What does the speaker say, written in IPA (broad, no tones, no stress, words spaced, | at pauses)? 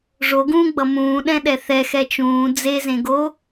ʐoɡũːɡ͡bʌ mũːɗɛ̃ɗɛ θɛxɛ t͡ʃũː d͡zezẽɡo